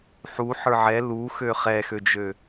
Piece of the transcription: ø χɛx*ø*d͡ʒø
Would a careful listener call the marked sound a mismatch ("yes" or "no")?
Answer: no